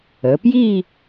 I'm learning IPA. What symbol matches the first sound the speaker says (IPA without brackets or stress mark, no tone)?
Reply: ə